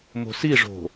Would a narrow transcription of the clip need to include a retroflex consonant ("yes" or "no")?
yes